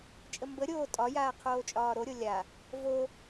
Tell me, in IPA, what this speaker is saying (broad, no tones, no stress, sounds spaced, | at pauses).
t͡ʃʼ ə m b ə ɾʲ oː tʼ ɒ j aː qʰ oː t͡ʃʼ ɒː ɾ o ɾʲ o lʲ a | v o